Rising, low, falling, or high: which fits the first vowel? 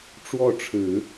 falling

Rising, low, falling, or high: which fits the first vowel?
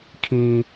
high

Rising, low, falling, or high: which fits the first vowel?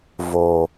low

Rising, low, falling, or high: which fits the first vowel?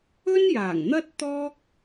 high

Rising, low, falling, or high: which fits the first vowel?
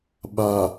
low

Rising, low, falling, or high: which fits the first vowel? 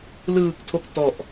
low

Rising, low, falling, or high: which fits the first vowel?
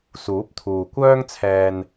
rising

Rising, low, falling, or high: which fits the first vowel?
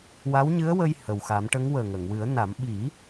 rising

